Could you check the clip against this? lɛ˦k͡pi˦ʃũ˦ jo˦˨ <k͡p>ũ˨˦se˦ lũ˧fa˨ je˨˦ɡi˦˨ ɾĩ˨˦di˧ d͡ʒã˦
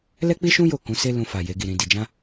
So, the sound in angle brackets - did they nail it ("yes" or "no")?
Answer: no